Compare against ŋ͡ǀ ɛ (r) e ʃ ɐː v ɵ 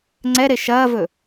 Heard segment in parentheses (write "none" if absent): ɾ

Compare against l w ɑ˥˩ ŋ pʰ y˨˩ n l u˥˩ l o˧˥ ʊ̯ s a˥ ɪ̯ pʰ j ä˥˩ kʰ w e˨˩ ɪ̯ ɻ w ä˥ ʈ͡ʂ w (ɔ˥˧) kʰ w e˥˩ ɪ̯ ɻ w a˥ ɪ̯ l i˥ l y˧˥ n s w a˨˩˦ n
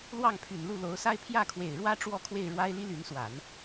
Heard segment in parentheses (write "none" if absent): ɔ˥˧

